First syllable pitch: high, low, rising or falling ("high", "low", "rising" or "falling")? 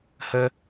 high